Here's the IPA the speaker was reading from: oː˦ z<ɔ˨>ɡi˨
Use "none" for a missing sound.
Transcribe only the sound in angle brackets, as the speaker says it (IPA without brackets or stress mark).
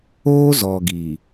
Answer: ɔ˨